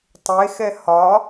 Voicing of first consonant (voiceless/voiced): voiceless